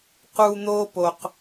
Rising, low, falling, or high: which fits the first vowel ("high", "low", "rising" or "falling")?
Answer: high